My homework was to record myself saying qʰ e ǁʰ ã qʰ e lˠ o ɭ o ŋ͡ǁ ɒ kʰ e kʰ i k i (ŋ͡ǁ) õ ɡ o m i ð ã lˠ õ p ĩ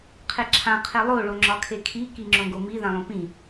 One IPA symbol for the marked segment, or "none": ŋ͡ǁ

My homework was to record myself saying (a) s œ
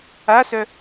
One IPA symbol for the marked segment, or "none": a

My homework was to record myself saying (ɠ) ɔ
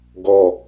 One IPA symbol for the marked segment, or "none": ɡ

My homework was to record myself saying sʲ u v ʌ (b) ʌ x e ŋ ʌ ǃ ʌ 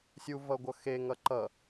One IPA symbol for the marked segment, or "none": ɡʷ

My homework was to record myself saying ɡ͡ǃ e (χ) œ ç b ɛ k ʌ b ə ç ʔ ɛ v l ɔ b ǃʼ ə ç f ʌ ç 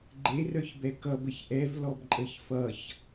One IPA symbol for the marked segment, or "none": r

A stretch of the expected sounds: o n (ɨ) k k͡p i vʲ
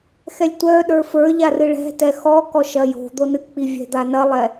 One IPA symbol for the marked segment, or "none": ɨ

